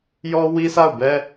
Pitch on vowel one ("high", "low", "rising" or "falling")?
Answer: high